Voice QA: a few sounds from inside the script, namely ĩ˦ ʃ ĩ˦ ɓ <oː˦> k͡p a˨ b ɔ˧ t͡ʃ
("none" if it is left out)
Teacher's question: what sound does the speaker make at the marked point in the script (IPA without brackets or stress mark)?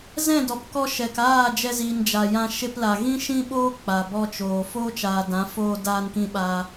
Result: oː˦